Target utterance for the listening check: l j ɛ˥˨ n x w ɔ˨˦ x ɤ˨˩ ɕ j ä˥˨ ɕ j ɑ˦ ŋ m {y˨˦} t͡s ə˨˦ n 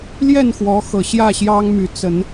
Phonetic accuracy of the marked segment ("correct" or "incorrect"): correct